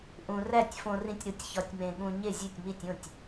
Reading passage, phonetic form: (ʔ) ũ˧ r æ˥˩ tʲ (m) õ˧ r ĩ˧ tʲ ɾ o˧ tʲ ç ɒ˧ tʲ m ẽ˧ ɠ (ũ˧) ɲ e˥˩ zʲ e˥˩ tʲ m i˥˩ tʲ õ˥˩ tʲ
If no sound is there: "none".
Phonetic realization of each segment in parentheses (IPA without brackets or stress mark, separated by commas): ʔ, f, ũ˧